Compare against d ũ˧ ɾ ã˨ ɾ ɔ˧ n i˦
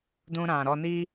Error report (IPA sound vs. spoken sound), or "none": none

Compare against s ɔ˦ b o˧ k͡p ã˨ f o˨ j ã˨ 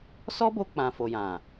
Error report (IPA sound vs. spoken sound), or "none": none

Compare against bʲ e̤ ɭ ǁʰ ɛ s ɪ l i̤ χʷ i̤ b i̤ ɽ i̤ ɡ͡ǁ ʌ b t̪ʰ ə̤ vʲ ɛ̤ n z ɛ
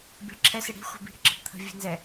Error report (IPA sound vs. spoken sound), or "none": l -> ɽ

